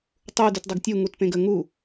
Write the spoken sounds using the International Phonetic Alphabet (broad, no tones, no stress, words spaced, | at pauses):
tˤu dytdˤaɡtʲu ŋutpẽɡə ŋu